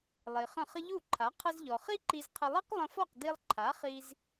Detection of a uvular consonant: present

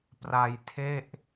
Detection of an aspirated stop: present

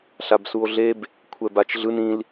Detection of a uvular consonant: absent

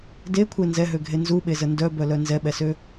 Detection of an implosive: present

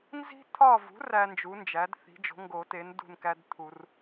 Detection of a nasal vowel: absent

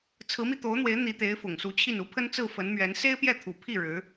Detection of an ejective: absent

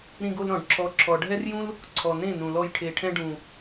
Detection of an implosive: absent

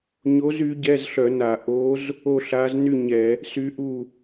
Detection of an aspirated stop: absent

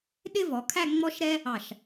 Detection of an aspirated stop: present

